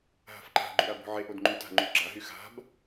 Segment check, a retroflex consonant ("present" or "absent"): absent